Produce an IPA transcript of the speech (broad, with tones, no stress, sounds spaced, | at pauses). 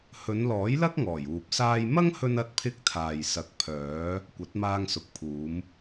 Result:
h ɵ˨˧ n l ɔː˨˥ j l ɐ˥ k̚ ŋ ɔː˨˩ j uː˨ p̚ s aː˥ j m ɐ˥ ŋ h ɵ˧ n ɐ˧ t̚ pʰ ɪ˧ k̚ t̪ʰ aː˨ j s ɐ˨ k̚ pʰ œː˨˧ | kʷ ɐ˨˥ t̚ m aː˧ ŋ s ʊ˨ k̚ pʰ uː˨˧ m